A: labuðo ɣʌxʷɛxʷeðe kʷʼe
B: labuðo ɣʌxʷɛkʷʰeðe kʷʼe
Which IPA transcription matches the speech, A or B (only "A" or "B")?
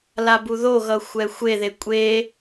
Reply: A